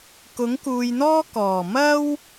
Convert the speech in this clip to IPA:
kʊ˨˥ŋkuː˨jn̪ɔː˥ kɔː˨˩ mɐ˥w

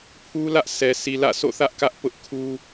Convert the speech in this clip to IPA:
pʰu˦lä˦ʔ sɛ˨ si˨lä̰˦˨so̰˦˨θä˦ʔ kä˦ʔpʊ˦ʔ kʰu˦

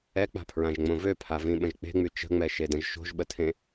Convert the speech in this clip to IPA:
ɛk͡pa̤pʰɹãʒŋ͡mõ vøpʰavĩɓə̃ʒ k͡pe̤ŋ͡my t͡ʃə̤ŋ͡mɛʃedə̃ʒ ʃo̤ʒɓətʰẽ

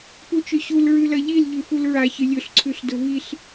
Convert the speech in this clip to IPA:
put͡ʃɵɕul ɹʉlɐʎil ʎʉfulɹa çɨlʲɵɬ ǀʰʉɬdɵviɬ

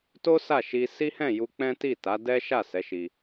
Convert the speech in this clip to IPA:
to˦sa˦˨ʃi˧ si˦hɛ̃˦˨ju˧k͡pɛ̃˦ ti˦˨ta˨˦dɛ˦ ʃa˦˨sɛ˨˦ʃi˧

